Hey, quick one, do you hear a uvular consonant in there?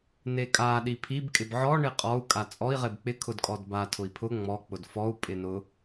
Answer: yes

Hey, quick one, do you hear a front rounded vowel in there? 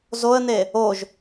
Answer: no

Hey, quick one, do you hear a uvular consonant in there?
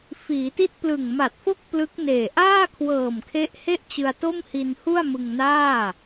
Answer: no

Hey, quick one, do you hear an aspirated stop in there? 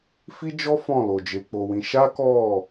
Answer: no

